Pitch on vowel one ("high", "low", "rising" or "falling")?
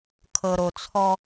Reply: low